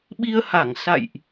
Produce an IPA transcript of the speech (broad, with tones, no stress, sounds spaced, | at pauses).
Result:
ɓ i˧ ə̯ h a˧˩ ŋ s a̰˧˨ j ʔ